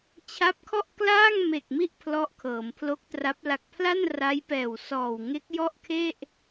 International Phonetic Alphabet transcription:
t͡ɕʰ a˦˥ p̚ kʰ ɔ˥˩ ʔ k l aː˥˩ ŋ m e˨˩ k̚ m i˥˩ ʔ pʰ l ɔ˦˥ ʔ kʰ ɤː˩˦ m pʰ l o˦˥ k̚ t r a˦˥ p̚ l a˨˩ k̚ pʰ l a˥˩ n r a˦˥ j p ɛː˨˩ w s ɔː˨˩ w ŋ e˦˥ k̚ j ɔ˥˩ ʔ kʰ e˥˩ ʔ

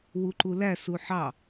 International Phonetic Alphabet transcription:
w u ǃ u l æ s u ħ ɑ

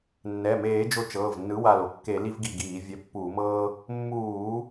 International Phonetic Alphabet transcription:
nː ɛ˩˧˩ m eː˧˩˧ d͡ʒ o˧˩ t͡ʃ ɤː˩˧˩ v nː ɯ˨˥ w a˧˩ l o˧˩ kː e˧˩˧ l i˦ v ɡ i˧˩ ɡ iː˧˩˧ vʲ ɛ˨˥ pː uː˧˩˧ m ɤː˦ | mː uː˧˩˧

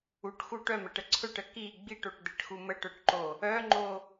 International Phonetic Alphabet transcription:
u ʈ x u ʈ œ m ə ʈ ə ǀʰ ɵ ʈ ə k i ɡ͡b i ʈ o ʈ d̪ e ʈ x u m ə ʈ œ ʈ ǃ o | œ ŋ͡ǃ o

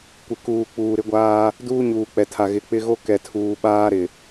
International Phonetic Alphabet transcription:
kʷ ɪ˨ k uː˨ k͡p uː˨ ɾ ɪ˦ ɡʷ aː˦ | d uː˦ ɲ uː˨ k͡p ɛ˨ tʰ a˨ ɣ ɪ˨ k͡p ɪ˦ ɣ o˦ k ɛ˨ tʰ uː˨ ɓ aː˦ ɾ ɪ˨

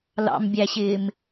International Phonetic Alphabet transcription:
l ɑ̰ m bʲ æ ɕ ɪː m

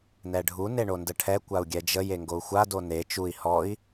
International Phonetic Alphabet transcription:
n ɛ ɖʱ u n e ɳ o n d ə ʈʰ ɛ kʷ a u̯ ɡʲ ɛ d͡ʒ ə j e ŋ ɡ o u̯ xʷ a d o n e t͡ʃ u i̯ h ɔ i̯

